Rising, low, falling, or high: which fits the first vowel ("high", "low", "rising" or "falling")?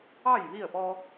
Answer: falling